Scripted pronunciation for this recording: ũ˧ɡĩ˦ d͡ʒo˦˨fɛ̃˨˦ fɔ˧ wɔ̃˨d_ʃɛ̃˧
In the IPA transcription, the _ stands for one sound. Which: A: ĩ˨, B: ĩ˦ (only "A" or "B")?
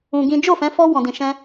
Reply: A